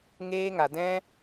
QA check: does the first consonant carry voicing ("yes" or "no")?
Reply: yes